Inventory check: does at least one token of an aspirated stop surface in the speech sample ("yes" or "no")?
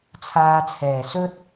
yes